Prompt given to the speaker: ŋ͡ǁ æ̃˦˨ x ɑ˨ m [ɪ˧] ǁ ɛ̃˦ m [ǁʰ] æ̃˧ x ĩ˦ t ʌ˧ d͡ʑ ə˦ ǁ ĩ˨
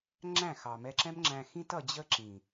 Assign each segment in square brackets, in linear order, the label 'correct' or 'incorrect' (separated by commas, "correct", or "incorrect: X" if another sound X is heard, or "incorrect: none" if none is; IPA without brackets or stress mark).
incorrect: ɛ˧, incorrect: ŋ͡ǁ